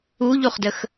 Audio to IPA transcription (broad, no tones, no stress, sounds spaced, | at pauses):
u ʎ u χ d ə x